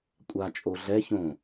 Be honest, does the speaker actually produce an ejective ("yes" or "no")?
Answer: yes